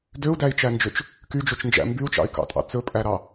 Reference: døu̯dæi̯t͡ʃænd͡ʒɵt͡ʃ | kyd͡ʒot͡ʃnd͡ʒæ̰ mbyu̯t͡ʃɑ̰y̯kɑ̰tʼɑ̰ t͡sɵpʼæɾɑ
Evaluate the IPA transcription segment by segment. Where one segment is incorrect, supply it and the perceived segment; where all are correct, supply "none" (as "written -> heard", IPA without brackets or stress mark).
none